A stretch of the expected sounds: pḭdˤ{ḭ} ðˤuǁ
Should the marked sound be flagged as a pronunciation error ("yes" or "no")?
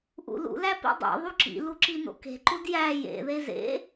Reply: yes